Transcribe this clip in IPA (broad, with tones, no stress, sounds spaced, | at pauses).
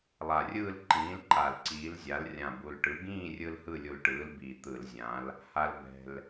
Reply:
lˠ a˨˩ rʲ ɯː˥˧ l ǃ ĩː˨˥ l ǃ a˨˩ l ǀ iː˨˥ l zʲ a˨˥ l rʲ ã˨˩ b u˨˩ l ʈ ɯ˨˥ ɡ ĩː˥˧ rʲ ɯ˧ l h ɯ˥˧ lʲ u˧ l ʈ ɯː˨˥ l b i˨˩ t̪ ɯ˧˩˧ l zʲ ã˨˥ l | h a˧ l b ɛ̤˨˩ l